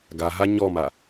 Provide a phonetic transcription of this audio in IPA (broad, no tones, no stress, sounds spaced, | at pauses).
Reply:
ɡ a ɦ a ɲ ɔ m a